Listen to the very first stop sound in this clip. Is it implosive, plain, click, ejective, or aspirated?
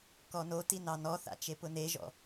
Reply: plain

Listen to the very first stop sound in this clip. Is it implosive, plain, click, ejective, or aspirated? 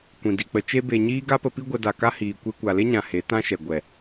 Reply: plain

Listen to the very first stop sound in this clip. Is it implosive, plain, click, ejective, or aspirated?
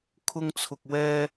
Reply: aspirated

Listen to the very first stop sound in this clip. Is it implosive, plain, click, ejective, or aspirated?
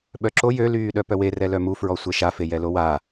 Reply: implosive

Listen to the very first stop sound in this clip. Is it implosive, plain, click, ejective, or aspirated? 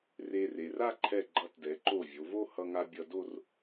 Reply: click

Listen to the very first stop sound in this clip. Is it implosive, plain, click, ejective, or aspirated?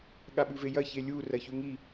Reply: implosive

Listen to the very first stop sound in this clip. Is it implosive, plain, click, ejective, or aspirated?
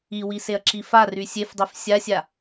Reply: click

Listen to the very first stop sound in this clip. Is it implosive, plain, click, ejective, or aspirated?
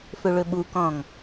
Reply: implosive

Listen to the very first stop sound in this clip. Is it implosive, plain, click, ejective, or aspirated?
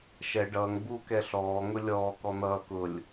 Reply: plain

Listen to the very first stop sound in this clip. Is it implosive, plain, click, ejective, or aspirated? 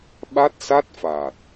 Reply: implosive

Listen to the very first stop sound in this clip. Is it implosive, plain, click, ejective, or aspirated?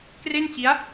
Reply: plain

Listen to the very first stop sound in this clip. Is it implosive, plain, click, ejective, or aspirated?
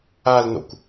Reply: plain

